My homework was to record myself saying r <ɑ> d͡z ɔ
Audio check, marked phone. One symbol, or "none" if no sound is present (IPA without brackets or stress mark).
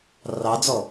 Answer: ɑ